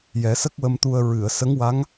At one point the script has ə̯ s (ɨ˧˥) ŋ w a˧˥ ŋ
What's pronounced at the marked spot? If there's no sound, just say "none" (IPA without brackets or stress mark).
ə˧˥